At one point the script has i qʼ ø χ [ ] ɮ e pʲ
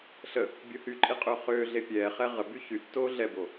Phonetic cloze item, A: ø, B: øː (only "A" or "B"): B